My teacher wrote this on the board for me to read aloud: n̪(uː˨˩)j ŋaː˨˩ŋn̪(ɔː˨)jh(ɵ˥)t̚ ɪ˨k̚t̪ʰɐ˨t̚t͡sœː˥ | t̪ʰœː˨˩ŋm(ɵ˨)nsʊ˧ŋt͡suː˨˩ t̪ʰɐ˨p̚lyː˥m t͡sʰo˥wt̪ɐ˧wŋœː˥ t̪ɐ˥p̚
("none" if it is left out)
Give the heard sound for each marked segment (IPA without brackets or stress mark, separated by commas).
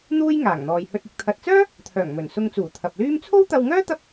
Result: uː˥, ɔː˨, ɵ˧, ɵ˨˩